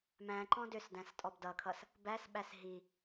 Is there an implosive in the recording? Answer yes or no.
yes